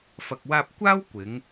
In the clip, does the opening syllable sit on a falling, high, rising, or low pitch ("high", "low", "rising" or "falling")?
low